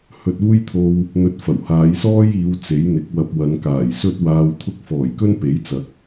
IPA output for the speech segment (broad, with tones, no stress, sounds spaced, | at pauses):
h ɵ˧ t̚ uː˥ j t̪ʰ o˧ w | n̪ ɵ˧ t̚ f ɐ˨˩ w h aː˨˧ j s ɔː˥ j iː˨˧ w t͡s e˨˥ j n̪ ɪ˨˥ k̚ w ɐ˧ p̚ w ɐ˨˧ n k aː˨˩ j s ɵ˥ t̚ w aː˧ w t̪ʰ ʊ˥ k̚ f ɔː˨˩ j k ɵ˥ n p e˨˥ j t͡s ɐ˨˥ k̚